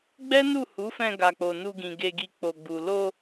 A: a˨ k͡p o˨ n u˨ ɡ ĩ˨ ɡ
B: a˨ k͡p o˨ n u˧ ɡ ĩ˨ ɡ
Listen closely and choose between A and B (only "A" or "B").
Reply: B